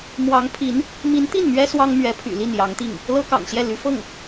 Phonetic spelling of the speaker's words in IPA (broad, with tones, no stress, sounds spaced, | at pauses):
m w ɑ˧˥ ŋ pʰ i˧˥ n | m i˧˥ n t̪ i˥˩ n m ɥ ɛ˥ s w ɑ˥ ŋ m ɥ ɛ˧˥ pʰ y̰˨˩ l i˥˩ n j ɑ˧˥ ŋ t̪ i˥˩ ŋ | l ɤ˥ k ɑ̰˨˩ ŋ ɕ j ɛ˥˩ l y˧˥ f ɤ˥˩ ŋ